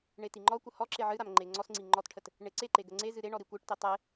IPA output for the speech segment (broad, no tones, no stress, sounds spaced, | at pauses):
ɳ e t i ŋ͡ǃ ɔ kʷ ə h ɔ ǁ e ʕ ɨ ɾ a m ŋ͡ǃ e ŋ͡ǀ ɔ s ŋ͡ǀ i ŋ͡ǃ ɔ t ʈʰ ə t | ɳ e ǀ e ǃ e ɡ ə ŋ͡ǀ e z ɨ ɾ e ɳ ɔ ɾ i kʷ e ʈ t i tˤ e